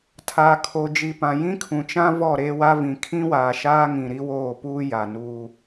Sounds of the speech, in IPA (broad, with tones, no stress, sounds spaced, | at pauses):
tʰ aː˨ kʰ o˨ d͡ʒ i˨ p ã˨ j ĩ˦ kʰ ũ˨ t͡ʃ ã˦ v ɔ˦˨ ɾ eː˦ w a˦ v ĩ˨ kʰ ĩ˦ w aː˨ ʃ aː˦ ŋ ĩ˨ ɾ i˦ w oː˦˨ p uː˦ j a˨ n uː˦